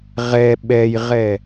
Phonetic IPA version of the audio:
ʁɛ ɓɛjʁɛ

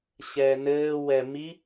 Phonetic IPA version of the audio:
ɕɛnɘː wɛmi

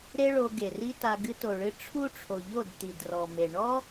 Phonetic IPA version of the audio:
ɾe˦ɭo˧ ɡe˨ri˦ta˧ ɡɨ˧to˨ɭɨ˧ ʈ͡ʂʰu˦ʈ͡ʂʰo˨ʎo˦˨d t̪i˨drɔ˨me˨ ɳɔ˦

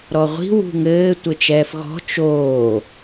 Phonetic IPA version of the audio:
ɾɔʁʷi̤ wṳŋɘː tʷɘt͡ʃɛːfɣɔ̤ t͡ʃoː

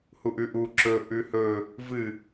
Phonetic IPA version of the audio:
huʔʉʔu ǁɵ ʔʉhɵ | vɨ

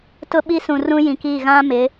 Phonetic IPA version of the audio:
tʊ˦ɓi˦ sũ˨rũ˦ jĩ˨ki˦˨ ɣã˦mɪ˨˦

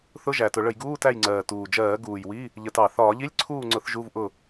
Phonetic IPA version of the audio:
θʊ˧˥˧ʒæ˨˩tʊ˧˩˧ ɭə˧˩˧jɡuː˧˥˧tæ˦˨jŋ͡ǀɜː˨˩ tuː˨˩d͡ʒɜː˧˩˧ ɡuː˨˩jwi˧˥˧ | ʎə˧˩˧tɑ˨˩ θɒː˧˩˧ʎi˧˥˧lʲǀʰuː˦˨ŋ͡ǀʊ˧˩˧θ ʒu˧˥˧vʔʊ˦˨

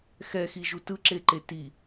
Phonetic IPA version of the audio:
xɛxiʒu tɯǁeǃe ti

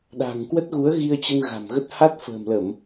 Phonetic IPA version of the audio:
ɗa̤˨˩ŋkwə˦˥t̚ɣu˨˦ə̯ ɣi˧ə̯t͡ɕə˧nɣa̤˨˩mɣə˦˥t̚ ha˦˥t̚fə̤ː˨˩mlə˧˩˨m

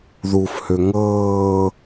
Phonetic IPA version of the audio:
ðufhø ŋɤː

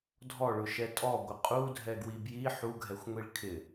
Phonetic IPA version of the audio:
dʱɔɭʊʃɛ tʼɔɡʷɪ qʼudʱɛɡwi bji ħuɡʱɛxʷŋʷiɭ kʰɪ

